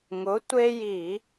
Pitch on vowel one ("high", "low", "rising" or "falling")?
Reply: rising